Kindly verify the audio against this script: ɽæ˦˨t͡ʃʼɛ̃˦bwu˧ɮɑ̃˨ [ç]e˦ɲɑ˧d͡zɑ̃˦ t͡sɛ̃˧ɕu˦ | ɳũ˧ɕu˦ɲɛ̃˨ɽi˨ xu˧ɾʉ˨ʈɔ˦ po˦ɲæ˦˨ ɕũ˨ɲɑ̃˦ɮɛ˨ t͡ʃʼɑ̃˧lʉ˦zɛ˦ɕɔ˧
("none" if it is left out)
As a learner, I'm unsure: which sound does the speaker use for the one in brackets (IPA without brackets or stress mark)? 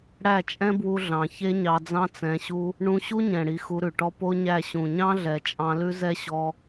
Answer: ç